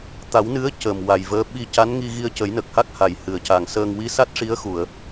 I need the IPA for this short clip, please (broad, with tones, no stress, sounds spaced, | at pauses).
t̪ a˨˩˦ w n ɨ˧˥ ə̯ c əː˨˩ m w a˨˩ j v əː˧˥ ɓ i˧ c a˧˥ n ŋ i˧ ɣ i˧ ə̯ c ə˨˩˦ j n ə˨˩ k̚ h a˦˥ k̚ h a˨˩˨ j h ɨ˨˩˨ ə̯ c a˨˩ ŋ s əː˧ ŋ w i˧˥ s a˦˥ t̚ ʂ i˧˥ ə̯ x u˨˩˨ ə̯